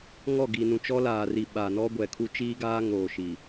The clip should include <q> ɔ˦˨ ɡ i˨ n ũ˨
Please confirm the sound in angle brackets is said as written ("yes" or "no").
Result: no